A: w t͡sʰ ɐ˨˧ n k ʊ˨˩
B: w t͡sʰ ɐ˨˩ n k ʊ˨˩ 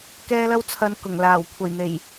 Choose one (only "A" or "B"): A